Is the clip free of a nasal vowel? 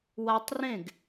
no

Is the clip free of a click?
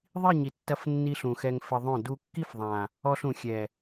yes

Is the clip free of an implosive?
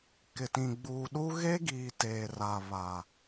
no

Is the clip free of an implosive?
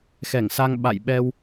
no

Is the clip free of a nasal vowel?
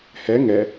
yes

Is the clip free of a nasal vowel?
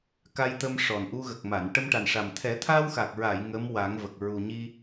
yes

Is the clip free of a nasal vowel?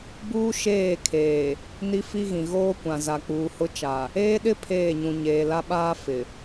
no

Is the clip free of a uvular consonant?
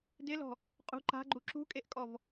no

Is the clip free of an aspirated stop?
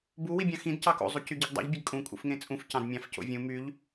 yes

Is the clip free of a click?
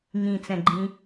no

